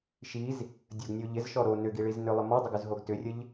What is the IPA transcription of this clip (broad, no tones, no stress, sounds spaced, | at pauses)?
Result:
ʃ i z | dʲ ə ɡ nʲ o ʎ ɪ z ʃ ɔ ɾ o n ʏ ɡ i ɭ i z n ʏ lˠ ɪ m ɔ dˤ ʊ ɡ ʏ z ɦ o ɡ t ʏ rʲ ə ʎ